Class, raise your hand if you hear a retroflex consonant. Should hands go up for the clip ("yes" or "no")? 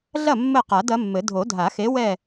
no